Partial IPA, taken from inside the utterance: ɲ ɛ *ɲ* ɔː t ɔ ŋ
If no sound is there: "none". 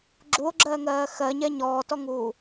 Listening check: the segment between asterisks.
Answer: ɲ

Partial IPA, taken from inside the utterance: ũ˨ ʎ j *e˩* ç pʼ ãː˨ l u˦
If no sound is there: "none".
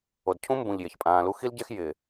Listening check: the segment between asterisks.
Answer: e˩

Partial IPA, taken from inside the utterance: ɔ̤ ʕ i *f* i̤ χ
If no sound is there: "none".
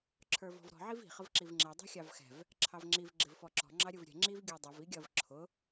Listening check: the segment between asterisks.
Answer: v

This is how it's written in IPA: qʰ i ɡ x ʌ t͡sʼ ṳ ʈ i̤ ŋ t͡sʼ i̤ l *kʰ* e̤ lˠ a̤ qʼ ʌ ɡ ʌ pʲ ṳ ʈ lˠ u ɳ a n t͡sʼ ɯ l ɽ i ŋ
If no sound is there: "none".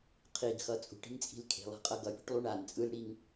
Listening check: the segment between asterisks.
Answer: kʰ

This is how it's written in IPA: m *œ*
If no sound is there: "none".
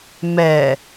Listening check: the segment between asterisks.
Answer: ɛ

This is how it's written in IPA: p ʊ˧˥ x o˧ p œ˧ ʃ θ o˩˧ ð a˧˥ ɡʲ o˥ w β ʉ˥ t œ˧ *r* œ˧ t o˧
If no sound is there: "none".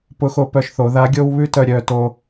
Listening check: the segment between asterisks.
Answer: ɾʲ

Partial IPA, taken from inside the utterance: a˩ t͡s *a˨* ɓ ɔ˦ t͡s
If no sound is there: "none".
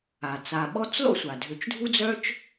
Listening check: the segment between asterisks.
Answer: a˨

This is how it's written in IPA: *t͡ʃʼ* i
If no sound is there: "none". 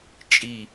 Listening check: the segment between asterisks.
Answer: t͡ʃʼ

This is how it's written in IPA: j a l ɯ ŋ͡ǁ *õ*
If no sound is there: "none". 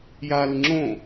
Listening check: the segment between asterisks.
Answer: õ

